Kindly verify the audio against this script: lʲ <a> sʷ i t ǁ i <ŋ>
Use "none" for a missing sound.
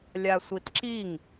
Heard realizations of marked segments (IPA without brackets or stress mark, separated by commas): a, ŋ